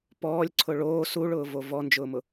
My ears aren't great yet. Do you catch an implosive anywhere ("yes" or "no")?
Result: no